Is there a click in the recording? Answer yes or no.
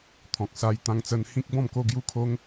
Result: no